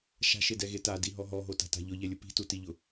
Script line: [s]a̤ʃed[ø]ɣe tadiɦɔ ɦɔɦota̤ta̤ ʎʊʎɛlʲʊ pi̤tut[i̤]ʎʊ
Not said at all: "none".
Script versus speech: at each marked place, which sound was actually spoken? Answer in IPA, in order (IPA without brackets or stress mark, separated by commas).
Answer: ʃ, ɛ, i